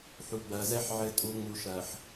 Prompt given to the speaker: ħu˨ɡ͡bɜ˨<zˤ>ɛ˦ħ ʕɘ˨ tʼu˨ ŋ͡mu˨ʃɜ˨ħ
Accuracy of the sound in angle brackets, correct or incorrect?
incorrect